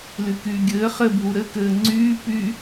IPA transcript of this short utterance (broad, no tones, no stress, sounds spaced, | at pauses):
l y k yː ɡʲ ɘː χ ɘ bʱ u ɾ ɘ k ɘː ŋ͡ǀ yː p y